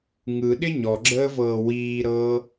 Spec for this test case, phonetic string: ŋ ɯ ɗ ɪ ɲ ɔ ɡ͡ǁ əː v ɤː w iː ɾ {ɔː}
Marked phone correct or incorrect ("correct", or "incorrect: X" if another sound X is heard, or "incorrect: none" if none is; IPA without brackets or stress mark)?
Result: incorrect: ɤː